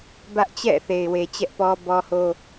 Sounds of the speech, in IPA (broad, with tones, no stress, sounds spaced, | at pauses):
b ä˦ ʔ t͡ɕ ɛ̰˦˨ θ e˨ ɪ̯ w e˨ t͡ɕ ɛ˦ ʔ p ɔ˦ b ɔ˦ h o˦